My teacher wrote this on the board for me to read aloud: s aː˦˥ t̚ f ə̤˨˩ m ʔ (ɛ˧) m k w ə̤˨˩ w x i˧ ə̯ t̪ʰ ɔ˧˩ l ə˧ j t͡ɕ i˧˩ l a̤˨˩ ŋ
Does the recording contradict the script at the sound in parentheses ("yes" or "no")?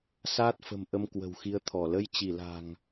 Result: yes